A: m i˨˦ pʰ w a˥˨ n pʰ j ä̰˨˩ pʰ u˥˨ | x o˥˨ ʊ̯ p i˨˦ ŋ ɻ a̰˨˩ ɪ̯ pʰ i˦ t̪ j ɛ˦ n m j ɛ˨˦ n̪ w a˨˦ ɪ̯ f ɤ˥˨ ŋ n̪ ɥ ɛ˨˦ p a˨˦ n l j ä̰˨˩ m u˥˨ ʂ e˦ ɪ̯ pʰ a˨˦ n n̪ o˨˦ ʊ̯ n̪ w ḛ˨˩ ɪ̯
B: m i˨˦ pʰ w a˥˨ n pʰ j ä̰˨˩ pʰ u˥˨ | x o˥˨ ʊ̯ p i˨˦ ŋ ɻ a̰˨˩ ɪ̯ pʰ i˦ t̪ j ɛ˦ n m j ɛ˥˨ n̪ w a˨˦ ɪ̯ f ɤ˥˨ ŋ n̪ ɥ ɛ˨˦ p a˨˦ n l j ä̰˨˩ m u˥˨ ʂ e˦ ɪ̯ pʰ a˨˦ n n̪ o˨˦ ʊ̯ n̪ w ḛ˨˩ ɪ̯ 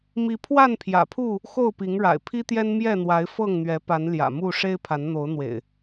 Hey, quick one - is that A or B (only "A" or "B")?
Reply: B